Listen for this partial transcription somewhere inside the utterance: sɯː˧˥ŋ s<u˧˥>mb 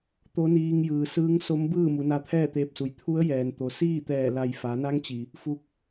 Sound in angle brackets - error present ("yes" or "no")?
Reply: yes